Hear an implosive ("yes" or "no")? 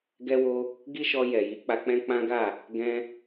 no